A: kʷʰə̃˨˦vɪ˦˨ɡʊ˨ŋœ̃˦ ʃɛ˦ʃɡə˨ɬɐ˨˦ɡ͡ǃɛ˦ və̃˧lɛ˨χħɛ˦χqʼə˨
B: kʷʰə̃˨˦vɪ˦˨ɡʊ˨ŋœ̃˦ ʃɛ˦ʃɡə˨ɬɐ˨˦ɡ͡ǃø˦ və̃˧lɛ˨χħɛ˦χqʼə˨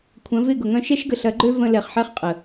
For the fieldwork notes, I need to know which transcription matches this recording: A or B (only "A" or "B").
B